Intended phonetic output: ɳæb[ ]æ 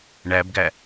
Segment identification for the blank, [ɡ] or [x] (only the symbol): ɡ